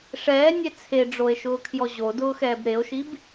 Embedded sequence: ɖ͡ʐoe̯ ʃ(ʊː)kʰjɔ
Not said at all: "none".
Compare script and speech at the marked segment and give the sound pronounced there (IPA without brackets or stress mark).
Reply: ʊː